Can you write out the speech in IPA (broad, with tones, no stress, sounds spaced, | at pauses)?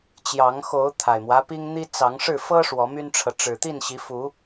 t͡ɕ j ɑ˨˦ ŋ x o˨˦ ʊ̯ t̪ʰ a˨˩ ɪ̯ m w ä˦ p i˦ ŋ n̪ i˦ t͡s ɑ˨˦ ŋ ʂ ɻ̩˥˨ f ɤ˦ ʂ w ɔ˨˦ m y˦ n ʈ͡ʂʰ ɤ˨ ʈ͡ʂ ɻ̩˨˩ t̪ i˥˨ n ɕ i˨˦ f u˨˦